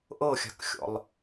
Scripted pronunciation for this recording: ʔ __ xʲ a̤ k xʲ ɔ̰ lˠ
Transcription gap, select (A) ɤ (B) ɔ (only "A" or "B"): A